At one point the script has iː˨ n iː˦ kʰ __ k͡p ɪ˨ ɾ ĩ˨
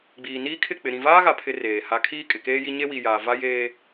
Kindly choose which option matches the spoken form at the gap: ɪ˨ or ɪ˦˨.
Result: ɪ˦˨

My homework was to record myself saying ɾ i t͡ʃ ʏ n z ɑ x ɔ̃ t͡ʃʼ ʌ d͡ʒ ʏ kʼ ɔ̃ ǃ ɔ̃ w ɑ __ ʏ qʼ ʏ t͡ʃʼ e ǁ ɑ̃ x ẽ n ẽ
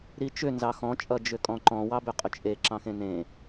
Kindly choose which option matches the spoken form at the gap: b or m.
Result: b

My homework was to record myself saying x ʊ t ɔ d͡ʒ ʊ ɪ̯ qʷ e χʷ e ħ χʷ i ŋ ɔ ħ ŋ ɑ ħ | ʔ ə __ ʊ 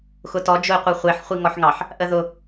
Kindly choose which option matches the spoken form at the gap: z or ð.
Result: ð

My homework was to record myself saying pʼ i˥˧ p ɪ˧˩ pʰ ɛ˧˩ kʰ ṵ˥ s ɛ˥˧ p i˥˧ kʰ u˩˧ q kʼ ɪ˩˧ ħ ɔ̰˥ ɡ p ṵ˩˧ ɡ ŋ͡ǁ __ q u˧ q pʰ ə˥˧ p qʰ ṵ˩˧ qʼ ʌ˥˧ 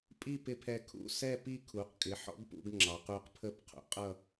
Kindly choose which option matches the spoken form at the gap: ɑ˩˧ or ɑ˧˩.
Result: ɑ˩˧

